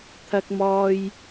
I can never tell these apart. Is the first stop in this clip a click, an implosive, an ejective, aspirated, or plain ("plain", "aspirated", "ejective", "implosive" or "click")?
aspirated